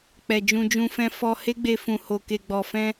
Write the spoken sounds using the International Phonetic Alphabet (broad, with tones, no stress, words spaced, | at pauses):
k͡pɛ˨d͡ʒũ˧d͡ʒũ˧fɛ̃˧ fɔ˧he˦ɡ͡be˧ fũ˨ho˨ke˨ɡ͡bɔ˨ fɛ̃˧